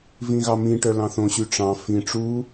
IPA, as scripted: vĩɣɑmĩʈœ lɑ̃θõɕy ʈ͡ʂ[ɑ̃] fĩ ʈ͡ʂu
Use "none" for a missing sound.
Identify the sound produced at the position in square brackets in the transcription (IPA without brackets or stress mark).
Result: ɑ̃